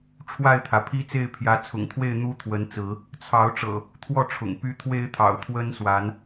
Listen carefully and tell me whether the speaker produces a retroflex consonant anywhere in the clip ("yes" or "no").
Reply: yes